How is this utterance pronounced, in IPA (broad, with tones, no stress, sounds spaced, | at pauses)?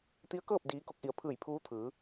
t̪ i˧˥ ə̯ k ɤː˥˨ p̚ d iː˧˥ k o˧˥ k̚ ʔ i˩˧ ə̯ pʰ ɯː˧˩ j pʰ uː˧˥ t̪ʰ ɯː˩˧